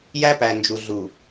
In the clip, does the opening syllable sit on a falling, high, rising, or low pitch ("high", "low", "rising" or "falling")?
high